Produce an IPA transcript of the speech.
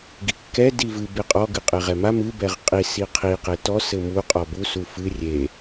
ɡikːɛ divɨ beqʼɔ ɡɨqʼeʁɛma mɨ bɛʁqʼi siqʰi qetɔ sɘmu qʼɔbu sufɨ rʲe

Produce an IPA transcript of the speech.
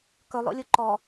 kɵlˠo̰lʲu ǃɔ

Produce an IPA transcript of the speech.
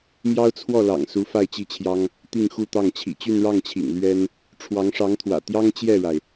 mjɑ˥ʊ̯t͡sʰwɔ˥˩ lɑ̰˨˩ŋsu˧˥ fa˥˧ɪ̯t͡ɕi˥˩t͡ɕʰjɑ˥ŋ | t̪i˥˧ŋxu˥˧t̪ɑ˥˩ŋ t͡ɕʰḭ˨˩t͡ɕy˥˧nɻɑ˥˩ŋt͡ɕʰḭ˨˩ŋ lɥɛ˥n | ʈ͡ʂʰwɑ˧˥ŋʂɑ˧˥ŋt̪ʰwä̰˨˩t̪jɑ˥ŋ t͡ɕjɛ˥˩ɻa˩ɪ̯

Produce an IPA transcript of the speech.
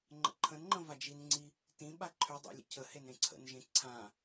ŋ͡ǃə̰ǃʰə̃nŋ͡ǃə̃ vad͡ʒinŋ͡ǀi | tĩ ɓaǃʰʏdˤḭ lʲə̰cʰəhen ɾẽǀʰə̰nʒẽ ǀʰã

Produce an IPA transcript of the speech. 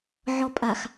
ʕɔpʼax

